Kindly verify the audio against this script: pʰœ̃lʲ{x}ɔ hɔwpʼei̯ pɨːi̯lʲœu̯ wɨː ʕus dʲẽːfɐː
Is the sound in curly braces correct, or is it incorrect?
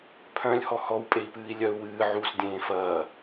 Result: incorrect